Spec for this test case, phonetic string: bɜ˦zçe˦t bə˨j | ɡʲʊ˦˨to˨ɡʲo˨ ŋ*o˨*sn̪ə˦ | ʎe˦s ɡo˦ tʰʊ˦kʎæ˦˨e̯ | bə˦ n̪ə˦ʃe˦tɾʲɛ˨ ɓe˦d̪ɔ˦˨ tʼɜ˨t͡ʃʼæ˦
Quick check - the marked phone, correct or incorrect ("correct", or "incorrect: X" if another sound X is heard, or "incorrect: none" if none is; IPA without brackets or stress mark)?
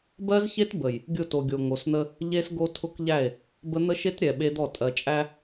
correct